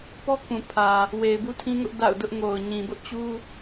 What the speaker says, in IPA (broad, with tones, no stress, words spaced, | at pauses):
pɔ˦ kũ˨pʰä˨ | we˨ɪ̯bu˦tʰĩ˦ŋʊ˦ʔ da̰˦˨ʊ̯ dʊ˦ʔŋo˨ʊ̯ ɲĩ˨bʊ˦ʔ t͡ɕu˦